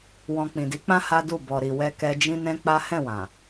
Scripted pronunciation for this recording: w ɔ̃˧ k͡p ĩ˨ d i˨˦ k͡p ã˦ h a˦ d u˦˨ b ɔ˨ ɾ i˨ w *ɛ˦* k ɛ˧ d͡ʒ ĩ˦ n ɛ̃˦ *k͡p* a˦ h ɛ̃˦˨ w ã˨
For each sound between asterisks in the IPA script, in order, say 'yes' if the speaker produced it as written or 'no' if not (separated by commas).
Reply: no, yes